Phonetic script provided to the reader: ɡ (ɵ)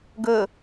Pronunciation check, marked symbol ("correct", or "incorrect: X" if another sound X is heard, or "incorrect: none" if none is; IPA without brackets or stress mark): correct